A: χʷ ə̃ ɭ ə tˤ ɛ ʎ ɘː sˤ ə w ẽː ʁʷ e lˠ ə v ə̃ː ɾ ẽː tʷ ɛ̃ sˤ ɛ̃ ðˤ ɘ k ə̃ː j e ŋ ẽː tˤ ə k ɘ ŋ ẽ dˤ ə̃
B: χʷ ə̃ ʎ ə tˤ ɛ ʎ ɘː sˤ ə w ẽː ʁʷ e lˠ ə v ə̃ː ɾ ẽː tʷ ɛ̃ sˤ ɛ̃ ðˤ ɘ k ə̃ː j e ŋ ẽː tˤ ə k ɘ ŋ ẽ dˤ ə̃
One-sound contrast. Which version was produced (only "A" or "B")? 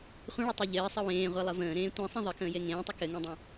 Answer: A